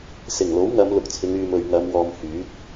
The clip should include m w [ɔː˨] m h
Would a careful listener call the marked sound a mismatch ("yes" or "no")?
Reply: no